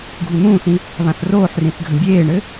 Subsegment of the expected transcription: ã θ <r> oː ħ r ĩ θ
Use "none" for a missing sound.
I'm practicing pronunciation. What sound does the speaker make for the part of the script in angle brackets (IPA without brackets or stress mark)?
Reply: r